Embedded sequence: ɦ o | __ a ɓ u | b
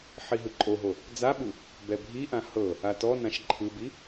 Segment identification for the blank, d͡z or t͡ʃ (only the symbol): d͡z